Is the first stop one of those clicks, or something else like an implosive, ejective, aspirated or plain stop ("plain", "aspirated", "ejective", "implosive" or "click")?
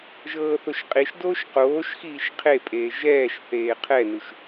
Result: ejective